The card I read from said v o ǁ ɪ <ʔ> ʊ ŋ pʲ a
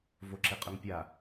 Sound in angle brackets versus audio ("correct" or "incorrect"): incorrect